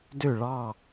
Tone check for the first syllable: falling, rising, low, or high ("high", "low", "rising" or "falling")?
falling